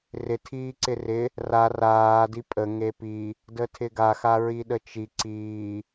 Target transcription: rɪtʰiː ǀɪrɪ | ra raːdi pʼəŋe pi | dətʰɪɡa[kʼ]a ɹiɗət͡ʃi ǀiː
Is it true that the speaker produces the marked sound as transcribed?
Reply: no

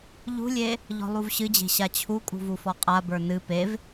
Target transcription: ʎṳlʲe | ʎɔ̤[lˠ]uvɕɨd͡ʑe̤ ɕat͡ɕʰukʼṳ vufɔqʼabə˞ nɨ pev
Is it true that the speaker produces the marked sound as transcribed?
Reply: yes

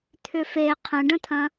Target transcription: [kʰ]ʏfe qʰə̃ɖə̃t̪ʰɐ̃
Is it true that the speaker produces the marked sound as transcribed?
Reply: no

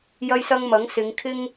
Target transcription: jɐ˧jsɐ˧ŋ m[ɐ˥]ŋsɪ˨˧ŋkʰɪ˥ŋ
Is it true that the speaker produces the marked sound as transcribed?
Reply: no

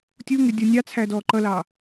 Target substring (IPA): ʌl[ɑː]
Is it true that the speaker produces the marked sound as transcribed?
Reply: yes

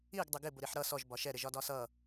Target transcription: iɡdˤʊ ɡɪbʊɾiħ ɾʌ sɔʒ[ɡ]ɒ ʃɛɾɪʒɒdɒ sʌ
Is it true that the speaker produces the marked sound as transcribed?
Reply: no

